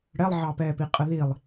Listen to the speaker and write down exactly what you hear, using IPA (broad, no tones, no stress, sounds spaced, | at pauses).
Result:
ɽ ɛ lˠ ʕ ɑ p ɛː p i qʼ ə ð i lˠ